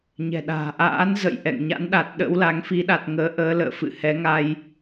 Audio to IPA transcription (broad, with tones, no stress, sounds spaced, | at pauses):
ɲ ɛ̤˨˩ ɗ a̤ː˨˩ ʔ a̰ː˧˥ n z ə̰˧˨ j ʔ ɛ̰˧˨ ŋ ɲ a̰˧˥ n ɗ a˨˩ t̚ ɗ ə̰˧˥ w l a˨˦ ŋ f i˨˦ ɗ a˨˩ t̚ ŋ əː˨˦ ʔ əː˨˦ l ə̰ː˧˨ f ɨ̰˧˨ h ɛ˨˦ ŋ a˧ j